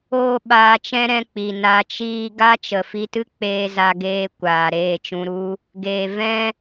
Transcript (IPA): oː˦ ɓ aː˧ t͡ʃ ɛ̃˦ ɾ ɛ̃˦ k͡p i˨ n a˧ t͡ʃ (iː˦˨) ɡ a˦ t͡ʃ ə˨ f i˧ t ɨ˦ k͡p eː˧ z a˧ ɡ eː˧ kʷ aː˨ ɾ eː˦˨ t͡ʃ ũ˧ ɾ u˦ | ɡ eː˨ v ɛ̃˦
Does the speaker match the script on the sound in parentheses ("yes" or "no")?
no